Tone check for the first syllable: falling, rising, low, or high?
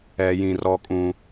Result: high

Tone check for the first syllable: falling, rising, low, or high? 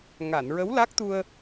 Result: low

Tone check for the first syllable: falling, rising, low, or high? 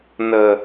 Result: low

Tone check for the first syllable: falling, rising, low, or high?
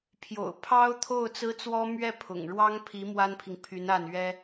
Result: low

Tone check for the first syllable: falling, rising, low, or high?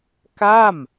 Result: falling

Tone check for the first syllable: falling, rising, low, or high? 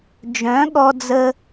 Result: rising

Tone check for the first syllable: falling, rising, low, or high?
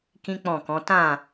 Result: high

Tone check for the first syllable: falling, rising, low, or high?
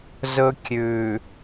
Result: high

